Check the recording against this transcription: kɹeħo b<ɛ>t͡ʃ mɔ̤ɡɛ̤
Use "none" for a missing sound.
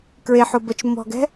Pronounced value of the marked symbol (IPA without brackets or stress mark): ə